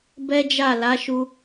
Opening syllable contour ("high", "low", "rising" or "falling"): high